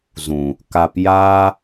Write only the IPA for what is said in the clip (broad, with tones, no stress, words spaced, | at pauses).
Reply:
zũ˨ | ka˨pjaː˧